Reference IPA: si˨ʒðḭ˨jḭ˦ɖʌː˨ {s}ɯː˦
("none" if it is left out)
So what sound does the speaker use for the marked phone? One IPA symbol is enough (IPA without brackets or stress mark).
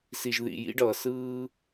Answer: s